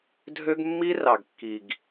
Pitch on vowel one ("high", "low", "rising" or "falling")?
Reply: high